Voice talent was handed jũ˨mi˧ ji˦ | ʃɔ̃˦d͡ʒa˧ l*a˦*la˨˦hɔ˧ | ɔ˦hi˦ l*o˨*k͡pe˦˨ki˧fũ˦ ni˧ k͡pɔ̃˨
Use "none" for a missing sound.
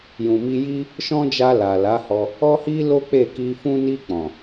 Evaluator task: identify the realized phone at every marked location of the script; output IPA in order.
a˨, o˦

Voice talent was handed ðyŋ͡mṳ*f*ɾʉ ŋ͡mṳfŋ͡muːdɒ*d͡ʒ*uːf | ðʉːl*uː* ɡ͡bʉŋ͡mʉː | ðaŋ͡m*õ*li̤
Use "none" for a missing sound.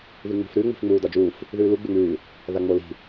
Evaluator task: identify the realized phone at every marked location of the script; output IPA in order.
f, d͡ʒ, u, o

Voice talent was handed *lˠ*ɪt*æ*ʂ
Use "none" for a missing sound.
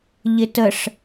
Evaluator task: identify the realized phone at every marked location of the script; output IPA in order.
ʎ, ə

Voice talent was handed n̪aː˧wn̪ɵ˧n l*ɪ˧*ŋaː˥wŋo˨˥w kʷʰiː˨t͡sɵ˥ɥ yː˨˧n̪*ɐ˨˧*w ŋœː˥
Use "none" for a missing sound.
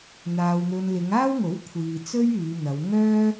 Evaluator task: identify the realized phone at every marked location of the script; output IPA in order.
ɪ˨˧, ɐ˨˧

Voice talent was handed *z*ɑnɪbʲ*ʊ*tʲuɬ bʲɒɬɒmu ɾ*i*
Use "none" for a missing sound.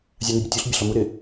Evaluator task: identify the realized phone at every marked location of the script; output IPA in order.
zʲ, ʊ, ɪ

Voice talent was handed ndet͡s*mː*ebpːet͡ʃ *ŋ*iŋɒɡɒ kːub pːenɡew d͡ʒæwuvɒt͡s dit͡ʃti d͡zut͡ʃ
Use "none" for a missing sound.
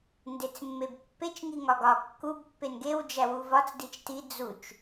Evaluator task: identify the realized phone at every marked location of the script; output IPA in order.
mː, ŋ

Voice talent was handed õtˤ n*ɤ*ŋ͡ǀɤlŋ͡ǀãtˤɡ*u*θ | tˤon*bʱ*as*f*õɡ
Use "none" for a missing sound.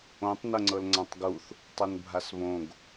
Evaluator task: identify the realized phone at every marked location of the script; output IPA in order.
ɤ, u, bʱ, β

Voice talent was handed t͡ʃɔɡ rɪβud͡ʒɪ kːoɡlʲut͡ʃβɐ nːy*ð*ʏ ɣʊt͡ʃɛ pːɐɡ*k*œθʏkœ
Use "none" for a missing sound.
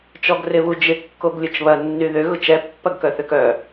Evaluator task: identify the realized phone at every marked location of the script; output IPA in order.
ð, k

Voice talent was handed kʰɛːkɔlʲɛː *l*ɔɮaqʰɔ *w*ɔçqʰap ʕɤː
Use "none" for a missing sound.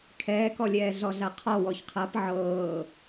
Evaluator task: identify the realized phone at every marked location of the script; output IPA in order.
ɮ, w

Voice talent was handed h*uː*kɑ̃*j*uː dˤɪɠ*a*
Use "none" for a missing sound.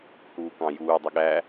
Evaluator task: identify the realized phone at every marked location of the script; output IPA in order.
uː, j, æ

